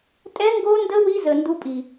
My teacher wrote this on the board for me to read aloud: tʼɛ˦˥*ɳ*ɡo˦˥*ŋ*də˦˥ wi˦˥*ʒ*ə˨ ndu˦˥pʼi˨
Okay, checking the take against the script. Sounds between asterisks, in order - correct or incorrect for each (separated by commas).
incorrect, incorrect, incorrect